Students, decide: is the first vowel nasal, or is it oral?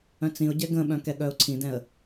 nasal